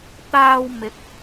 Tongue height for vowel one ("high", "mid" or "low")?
low